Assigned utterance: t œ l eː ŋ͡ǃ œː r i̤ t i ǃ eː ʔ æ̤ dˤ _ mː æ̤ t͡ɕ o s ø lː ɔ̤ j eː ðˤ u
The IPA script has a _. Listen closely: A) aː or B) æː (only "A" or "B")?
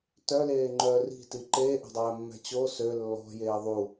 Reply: B